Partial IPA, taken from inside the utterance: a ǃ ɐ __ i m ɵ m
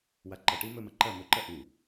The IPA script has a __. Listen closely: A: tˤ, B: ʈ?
B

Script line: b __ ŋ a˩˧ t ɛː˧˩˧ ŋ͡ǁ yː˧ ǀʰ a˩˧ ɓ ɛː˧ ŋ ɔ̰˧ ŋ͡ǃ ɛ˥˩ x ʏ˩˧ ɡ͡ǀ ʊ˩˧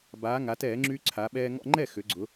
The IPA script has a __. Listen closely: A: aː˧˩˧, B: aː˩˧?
B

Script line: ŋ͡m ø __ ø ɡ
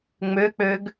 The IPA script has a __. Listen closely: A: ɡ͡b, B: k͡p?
B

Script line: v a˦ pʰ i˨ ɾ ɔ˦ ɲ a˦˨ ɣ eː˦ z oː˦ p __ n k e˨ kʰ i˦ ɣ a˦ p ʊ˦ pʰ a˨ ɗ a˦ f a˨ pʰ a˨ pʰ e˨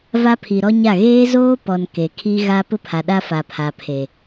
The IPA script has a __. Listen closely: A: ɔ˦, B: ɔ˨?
B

